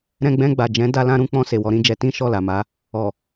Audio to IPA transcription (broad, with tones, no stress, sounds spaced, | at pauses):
ɾ ɛ̃˧ ɡ͡b ɛ̃˧ ɡ͡b a˨ d͡ʒ ɛ̃˨˦ d a˦ l ã˦ ɾ ũ˦ k͡p ɔ̃˧ s e˨ w ɔ˨˦ ɾ ĩ˦ d͡ʒ ɛ˧ t ĩ˦ ʃ ɔ˦˨ l a˨ m a˨˦ | ɔ˨